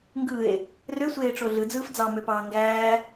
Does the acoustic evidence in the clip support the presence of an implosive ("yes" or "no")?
no